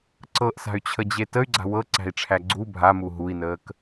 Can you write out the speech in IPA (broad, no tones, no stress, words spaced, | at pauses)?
ǀɤʔsa̤y̯t͡ɕʰəd͡ʑe təy̯ɡ͡ǀa̤ wɤǀæ̤i̯ʈ͡ʂʰæ ɡ͡ǀu bʱamu ɦui̯nəːk